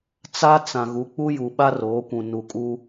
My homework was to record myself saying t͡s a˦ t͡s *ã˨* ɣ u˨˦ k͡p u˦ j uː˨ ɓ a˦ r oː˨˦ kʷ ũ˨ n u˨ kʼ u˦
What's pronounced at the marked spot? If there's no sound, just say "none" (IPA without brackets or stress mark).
ã˨